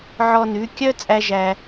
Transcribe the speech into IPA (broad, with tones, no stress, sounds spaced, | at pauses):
ʕ ɔ˧ n ʉ˨˦ kʲ œ˦ t͡sʼ æ˦ ʒ æ˧